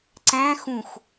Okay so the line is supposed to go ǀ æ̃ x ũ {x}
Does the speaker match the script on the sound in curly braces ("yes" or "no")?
yes